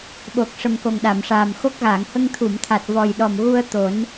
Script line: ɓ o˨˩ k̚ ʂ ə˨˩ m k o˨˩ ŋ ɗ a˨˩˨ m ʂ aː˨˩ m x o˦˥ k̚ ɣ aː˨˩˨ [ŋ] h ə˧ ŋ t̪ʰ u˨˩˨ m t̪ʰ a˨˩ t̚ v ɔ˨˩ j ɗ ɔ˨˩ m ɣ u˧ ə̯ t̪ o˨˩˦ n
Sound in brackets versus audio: correct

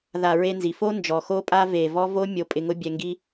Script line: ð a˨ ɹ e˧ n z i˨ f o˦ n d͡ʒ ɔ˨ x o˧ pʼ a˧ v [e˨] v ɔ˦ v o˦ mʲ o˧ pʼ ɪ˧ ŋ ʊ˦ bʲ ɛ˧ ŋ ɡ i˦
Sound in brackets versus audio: correct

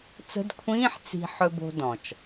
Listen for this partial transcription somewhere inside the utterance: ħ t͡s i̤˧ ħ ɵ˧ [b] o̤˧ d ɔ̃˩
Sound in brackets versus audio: correct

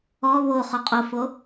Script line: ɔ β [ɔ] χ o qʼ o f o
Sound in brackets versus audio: incorrect: o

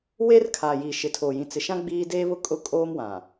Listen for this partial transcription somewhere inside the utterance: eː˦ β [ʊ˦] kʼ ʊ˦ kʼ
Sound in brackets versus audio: correct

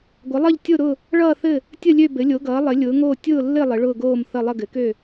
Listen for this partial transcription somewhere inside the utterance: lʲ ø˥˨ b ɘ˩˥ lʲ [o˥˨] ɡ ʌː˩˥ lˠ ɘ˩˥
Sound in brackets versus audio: incorrect: o˩˥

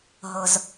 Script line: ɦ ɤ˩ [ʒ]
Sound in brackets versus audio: incorrect: z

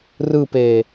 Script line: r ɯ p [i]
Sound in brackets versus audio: incorrect: e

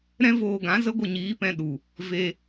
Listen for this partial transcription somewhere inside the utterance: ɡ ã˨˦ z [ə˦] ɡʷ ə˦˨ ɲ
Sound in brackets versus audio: correct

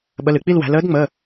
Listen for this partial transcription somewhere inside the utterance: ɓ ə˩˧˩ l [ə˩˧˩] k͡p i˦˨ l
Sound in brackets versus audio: incorrect: ɨ˩˧˩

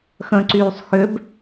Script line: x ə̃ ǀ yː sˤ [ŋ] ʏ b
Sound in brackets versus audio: incorrect: x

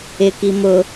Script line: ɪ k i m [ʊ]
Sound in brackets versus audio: correct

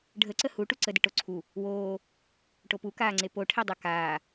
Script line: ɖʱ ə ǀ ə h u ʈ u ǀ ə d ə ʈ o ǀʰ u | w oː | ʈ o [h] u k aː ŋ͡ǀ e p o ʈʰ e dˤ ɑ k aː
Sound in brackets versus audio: incorrect: p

